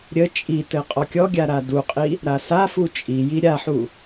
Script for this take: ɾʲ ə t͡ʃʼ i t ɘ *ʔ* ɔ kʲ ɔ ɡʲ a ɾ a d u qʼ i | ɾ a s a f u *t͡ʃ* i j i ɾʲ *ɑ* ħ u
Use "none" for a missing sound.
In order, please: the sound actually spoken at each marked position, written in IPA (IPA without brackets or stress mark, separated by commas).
qʼ, t͡ʃʼ, a